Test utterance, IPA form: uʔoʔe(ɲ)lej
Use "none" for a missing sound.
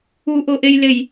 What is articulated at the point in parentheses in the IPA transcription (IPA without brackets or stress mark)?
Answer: j